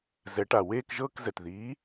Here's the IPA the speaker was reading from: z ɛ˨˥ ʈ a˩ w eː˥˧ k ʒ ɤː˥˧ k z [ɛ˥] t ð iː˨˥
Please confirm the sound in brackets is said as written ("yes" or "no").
no